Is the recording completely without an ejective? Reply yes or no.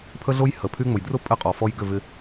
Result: no